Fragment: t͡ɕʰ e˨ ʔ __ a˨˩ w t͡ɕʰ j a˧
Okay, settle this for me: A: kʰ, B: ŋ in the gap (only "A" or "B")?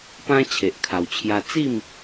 A